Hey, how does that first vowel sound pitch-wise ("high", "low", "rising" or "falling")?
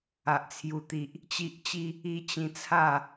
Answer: low